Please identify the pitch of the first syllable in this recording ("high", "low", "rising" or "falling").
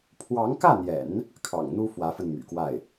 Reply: rising